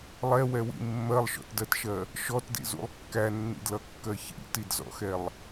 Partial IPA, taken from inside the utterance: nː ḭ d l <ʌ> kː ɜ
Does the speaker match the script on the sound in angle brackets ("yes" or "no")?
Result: yes